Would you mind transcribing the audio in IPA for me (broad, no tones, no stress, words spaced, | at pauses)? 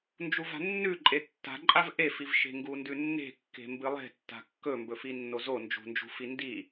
nd͡ʒuva̤nːʉǃʼe tːa̤ǃʼav ʔefivʃe̤ ŋɡundʉnːe̤ kːe̤mbɨlˠe̤tːa̤ kːɵmbɵfi nːozo nd͡ʒṳnd͡ʒṳfi ndi